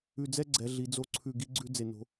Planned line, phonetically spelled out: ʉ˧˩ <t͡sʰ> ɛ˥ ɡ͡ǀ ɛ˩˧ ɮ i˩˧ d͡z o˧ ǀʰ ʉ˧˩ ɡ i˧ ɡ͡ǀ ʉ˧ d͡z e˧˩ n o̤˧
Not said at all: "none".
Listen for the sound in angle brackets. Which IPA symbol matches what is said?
d͡z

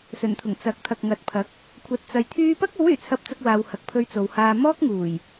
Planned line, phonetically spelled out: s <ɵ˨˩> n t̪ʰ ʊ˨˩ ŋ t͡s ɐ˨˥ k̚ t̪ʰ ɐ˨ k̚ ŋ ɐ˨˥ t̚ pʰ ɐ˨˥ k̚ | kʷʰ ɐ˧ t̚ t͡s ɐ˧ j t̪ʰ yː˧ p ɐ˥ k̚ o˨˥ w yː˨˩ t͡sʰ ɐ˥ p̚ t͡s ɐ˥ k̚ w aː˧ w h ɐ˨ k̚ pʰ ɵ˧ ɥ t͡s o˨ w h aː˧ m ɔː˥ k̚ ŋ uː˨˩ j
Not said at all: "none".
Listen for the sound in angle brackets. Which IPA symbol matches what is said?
ɵ˨˩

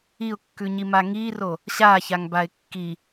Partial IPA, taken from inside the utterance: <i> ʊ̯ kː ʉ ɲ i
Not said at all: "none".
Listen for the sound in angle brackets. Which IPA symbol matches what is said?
i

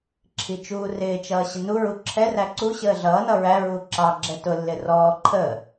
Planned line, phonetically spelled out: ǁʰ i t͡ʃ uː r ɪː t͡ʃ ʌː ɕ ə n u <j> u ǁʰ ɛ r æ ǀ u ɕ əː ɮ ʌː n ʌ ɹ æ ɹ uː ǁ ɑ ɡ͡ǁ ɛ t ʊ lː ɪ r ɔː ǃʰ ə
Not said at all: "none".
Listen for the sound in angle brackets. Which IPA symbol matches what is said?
ɹ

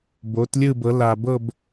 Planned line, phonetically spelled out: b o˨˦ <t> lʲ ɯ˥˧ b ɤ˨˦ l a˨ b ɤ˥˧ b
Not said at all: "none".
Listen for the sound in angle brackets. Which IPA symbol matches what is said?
t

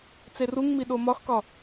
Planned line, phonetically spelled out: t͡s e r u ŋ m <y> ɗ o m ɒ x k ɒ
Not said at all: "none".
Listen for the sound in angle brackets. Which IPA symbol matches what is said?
i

